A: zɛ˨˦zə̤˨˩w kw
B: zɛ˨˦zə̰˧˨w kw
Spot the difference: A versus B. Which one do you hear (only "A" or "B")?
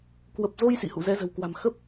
A